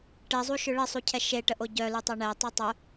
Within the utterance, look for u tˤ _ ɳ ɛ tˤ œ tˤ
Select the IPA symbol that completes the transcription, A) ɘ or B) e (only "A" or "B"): A